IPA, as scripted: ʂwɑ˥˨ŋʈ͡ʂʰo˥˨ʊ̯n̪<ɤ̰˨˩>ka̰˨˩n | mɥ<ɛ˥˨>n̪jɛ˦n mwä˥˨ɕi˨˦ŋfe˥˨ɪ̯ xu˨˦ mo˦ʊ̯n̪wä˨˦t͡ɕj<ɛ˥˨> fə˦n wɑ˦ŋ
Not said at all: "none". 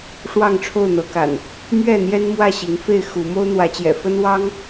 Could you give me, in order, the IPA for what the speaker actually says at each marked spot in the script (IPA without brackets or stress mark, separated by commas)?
ɤ˨˦, ɛ˥˨, ɛ̰˨˩